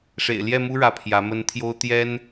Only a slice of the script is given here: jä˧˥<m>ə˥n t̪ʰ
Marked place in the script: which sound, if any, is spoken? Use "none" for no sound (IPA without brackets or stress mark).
m